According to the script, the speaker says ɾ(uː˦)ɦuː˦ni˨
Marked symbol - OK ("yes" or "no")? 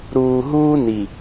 no